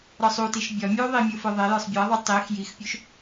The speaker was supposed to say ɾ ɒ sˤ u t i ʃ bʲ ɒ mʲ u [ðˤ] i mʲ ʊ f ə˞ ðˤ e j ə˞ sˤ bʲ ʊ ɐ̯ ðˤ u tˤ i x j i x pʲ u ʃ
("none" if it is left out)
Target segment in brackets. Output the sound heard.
ðˤ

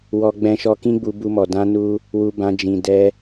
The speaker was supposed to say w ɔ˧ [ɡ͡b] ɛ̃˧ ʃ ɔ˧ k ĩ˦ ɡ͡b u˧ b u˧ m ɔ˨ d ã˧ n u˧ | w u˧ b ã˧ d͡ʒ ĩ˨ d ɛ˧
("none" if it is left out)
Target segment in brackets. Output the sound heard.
ɡ͡b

